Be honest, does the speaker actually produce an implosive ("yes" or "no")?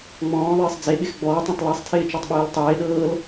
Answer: yes